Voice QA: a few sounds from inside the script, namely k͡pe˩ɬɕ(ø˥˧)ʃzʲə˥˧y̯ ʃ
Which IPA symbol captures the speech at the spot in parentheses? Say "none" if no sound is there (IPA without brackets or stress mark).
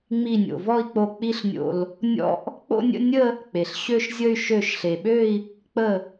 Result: ø˥˧